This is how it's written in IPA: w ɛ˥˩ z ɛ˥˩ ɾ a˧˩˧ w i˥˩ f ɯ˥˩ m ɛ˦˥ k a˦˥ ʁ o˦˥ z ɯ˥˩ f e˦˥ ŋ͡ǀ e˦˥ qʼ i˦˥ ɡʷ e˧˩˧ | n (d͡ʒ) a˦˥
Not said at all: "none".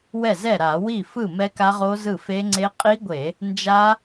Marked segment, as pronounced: d͡ʒ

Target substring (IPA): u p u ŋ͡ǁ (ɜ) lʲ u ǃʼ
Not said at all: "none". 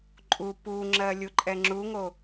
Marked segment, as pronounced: ɜ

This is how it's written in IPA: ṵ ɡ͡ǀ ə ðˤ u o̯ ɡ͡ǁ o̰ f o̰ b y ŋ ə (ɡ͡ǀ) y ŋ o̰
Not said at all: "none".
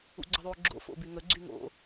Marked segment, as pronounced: ɡ͡ǀ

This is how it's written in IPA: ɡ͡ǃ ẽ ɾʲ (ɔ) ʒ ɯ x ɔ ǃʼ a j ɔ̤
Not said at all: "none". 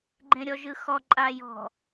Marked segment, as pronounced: ɔ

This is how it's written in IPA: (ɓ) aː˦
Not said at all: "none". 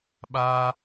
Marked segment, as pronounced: ɓ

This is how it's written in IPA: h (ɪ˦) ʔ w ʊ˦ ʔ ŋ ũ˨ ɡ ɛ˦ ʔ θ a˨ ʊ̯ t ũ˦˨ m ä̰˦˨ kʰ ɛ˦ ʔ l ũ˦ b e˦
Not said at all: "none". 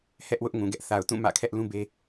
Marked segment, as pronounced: ɛ˦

